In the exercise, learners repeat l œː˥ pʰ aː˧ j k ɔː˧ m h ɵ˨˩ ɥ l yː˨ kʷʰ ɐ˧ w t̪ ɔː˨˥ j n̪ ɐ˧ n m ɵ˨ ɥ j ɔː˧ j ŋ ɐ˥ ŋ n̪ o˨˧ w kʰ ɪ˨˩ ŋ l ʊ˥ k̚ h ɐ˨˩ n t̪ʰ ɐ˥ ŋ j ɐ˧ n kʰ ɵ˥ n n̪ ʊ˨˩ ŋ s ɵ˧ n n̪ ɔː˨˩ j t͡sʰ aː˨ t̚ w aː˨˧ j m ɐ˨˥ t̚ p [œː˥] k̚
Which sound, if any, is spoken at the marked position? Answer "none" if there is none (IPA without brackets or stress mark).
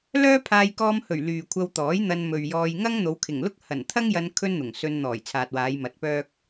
œː˥